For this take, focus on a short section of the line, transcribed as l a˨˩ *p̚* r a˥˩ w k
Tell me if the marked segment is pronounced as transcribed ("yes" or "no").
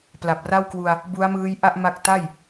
yes